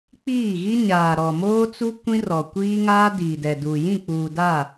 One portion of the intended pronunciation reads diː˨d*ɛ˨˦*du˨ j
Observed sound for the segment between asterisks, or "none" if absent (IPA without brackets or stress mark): ɛ˨